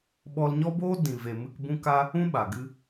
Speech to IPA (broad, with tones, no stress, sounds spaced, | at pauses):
ɓ ɔ˧ l ɲ ɔ˦ b oː˦ d ĩ˨ v e˨ m ɨ˧ k b ũ˦ k a˦ | ũ˦ ɓ a˨ ɡ ɨ˧